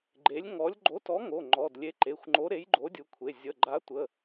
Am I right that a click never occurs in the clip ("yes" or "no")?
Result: no